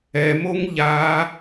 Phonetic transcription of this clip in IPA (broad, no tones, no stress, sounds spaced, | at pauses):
ɛ m o ŋ ʎ a